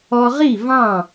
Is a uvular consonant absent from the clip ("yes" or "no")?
no